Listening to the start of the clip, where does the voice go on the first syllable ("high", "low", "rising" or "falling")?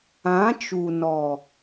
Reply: rising